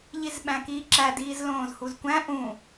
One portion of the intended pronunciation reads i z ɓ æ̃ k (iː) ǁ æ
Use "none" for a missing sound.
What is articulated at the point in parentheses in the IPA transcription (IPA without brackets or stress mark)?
iː